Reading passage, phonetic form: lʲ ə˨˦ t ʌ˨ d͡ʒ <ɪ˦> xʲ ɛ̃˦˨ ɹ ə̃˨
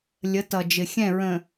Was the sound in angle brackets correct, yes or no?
no